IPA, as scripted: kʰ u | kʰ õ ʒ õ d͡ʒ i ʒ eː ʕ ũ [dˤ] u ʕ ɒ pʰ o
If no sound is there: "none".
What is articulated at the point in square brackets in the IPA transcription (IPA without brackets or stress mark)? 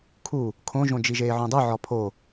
dˤ